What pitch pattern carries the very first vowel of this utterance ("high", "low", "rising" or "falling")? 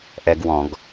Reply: high